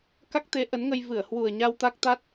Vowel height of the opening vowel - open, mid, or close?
open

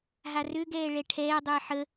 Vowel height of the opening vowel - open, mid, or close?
open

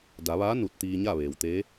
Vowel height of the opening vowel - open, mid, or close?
open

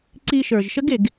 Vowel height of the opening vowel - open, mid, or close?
close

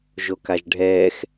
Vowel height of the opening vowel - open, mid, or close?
mid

